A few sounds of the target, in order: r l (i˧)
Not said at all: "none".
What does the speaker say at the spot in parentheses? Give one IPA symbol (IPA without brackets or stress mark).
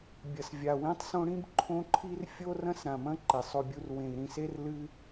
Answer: ɨ˧